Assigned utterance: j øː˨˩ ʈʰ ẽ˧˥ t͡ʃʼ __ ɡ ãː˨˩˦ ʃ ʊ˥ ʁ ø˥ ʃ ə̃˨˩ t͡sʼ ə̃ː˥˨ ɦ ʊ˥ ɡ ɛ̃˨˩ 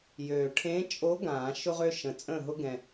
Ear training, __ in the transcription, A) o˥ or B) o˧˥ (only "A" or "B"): B